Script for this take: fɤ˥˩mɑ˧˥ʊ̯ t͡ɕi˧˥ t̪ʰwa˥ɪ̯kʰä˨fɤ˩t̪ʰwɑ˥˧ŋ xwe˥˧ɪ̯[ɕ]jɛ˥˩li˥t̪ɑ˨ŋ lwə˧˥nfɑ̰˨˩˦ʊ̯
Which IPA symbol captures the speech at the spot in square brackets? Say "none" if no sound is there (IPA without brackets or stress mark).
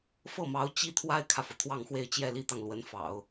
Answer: t͡ɕ